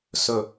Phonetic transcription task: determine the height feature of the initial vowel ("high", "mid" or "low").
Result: mid